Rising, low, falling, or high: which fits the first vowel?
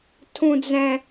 high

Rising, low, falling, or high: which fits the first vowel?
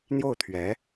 falling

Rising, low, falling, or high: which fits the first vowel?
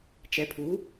rising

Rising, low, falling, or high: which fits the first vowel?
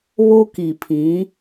high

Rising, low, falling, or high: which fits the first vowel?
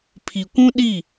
low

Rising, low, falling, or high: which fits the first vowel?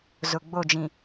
low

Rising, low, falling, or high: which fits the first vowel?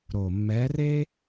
low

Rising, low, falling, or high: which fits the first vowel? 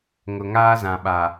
low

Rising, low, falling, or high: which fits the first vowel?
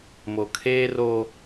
low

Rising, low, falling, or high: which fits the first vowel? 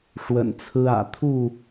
low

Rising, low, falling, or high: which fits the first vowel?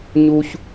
high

